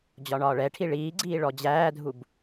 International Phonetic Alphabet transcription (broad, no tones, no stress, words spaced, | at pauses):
d͡ʑɒɳɒːɭɛʈʰi ɭiːɡ͡ǀiː ɭɔd͡ʑæːdʱub